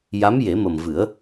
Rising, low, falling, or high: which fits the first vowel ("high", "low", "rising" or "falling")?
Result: rising